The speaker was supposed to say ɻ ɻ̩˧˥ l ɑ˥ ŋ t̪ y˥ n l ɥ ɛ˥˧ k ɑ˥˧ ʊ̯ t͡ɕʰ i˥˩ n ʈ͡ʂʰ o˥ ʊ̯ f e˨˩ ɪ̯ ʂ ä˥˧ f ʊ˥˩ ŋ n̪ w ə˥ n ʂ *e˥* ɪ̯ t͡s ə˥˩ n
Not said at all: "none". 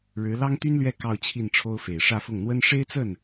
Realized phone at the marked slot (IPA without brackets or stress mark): e˥